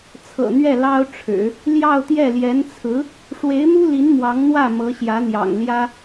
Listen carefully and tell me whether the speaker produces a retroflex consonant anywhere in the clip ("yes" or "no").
yes